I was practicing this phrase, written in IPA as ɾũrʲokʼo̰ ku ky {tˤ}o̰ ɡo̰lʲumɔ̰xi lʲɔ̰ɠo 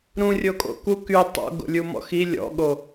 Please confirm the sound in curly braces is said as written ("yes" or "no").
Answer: yes